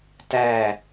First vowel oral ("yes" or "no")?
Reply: yes